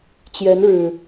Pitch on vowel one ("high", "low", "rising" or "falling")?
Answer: rising